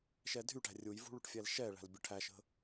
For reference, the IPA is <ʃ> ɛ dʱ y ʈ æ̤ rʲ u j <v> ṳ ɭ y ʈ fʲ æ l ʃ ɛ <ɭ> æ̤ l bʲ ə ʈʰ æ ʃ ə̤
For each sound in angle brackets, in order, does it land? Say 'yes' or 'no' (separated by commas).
yes, yes, yes